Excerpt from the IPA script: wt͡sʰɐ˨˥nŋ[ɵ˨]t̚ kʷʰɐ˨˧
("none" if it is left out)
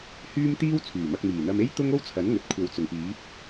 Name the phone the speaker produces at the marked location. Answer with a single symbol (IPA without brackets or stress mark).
ɵ˨